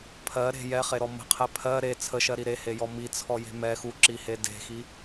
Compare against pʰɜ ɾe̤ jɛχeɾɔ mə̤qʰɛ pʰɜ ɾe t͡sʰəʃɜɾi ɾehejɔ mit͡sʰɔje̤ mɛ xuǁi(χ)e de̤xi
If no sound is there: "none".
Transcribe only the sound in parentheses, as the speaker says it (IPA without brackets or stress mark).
h